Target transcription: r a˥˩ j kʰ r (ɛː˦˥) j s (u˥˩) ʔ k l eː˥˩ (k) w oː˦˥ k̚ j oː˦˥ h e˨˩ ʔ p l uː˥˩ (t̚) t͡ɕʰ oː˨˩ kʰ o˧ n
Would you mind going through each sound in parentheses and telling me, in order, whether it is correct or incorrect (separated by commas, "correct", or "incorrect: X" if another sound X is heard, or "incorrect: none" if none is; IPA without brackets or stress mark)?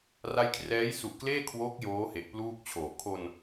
correct, incorrect: u˨˩, incorrect: kʰ, incorrect: k̚